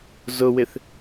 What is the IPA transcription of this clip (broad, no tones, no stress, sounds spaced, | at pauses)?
z ʊ w ɪ θ